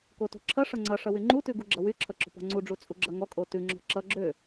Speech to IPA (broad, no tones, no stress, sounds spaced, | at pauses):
k o t o̤ ǁʰ ʌ ʂ ʌ ŋ͡ǀ ʌ ʂ ʌ w y ŋ͡ǃ u t ʉ ɡ u ɡ͡ǁ ʌ w y ǁʰ ʌ ǁ o̤ p ɔ̤ ŋ͡ǀ u ɖ͡ʐ u t͡sʼ u ɡ͡ǁ ʌ ŋ ɔ kʼ o t ʉ ŋ͡ǁ ɔ̤ ǁ ʌ ɡ͡ǁ ø